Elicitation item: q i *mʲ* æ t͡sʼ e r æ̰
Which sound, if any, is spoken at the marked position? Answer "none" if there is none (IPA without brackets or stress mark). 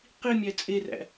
mʲ